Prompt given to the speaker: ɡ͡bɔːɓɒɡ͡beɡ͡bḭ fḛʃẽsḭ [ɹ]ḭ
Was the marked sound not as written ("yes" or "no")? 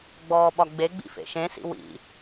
yes